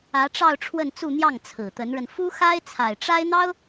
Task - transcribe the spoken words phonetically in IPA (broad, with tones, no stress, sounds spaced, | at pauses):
ä˧˥ ʈ͡ʂ ɑ˥˧ ʊ̯ ʈ͡ʂʰ w ə˥˧ n t͡s u˥˧ n̪ j ɑ˥˩ ŋ t͡sʰ ɹ̩˨˩ t̪ ə˧˥ n ɻ ə˧ n f u˥ x a˥ ɪ̯ t͡sʰ a˨˩ ɪ̯ ʈ͡ʂ a˥ ɪ̯ n̪ ɑ˥ ʊ̯